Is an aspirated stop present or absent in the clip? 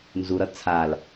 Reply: present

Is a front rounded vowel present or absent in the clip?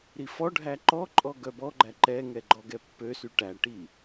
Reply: present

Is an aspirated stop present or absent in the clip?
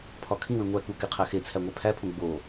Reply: present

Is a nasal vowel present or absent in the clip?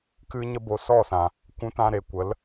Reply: present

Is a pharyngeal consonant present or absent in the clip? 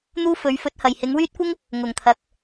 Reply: absent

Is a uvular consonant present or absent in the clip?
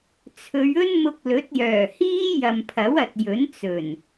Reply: absent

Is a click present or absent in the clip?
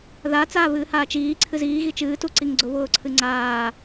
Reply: present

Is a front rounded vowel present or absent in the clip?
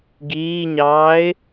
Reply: absent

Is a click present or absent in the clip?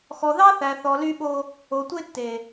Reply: absent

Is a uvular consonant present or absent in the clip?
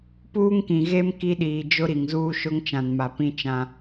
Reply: absent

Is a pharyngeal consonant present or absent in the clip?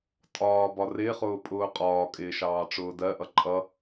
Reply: absent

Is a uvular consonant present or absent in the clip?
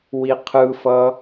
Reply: present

